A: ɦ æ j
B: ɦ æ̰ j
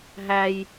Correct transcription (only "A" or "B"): A